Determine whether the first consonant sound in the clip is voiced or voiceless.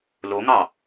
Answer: voiced